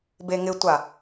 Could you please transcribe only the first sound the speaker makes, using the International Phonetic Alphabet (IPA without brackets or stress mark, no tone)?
b